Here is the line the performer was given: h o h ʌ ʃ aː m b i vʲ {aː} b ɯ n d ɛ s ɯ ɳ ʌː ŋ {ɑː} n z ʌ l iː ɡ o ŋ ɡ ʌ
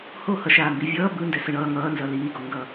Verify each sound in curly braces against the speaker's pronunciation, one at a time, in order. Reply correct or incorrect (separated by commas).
incorrect, incorrect